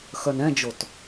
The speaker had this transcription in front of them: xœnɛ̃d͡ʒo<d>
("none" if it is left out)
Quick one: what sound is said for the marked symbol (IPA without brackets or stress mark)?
t